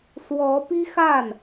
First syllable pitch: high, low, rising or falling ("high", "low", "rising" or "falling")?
rising